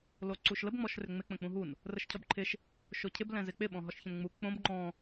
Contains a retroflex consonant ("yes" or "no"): no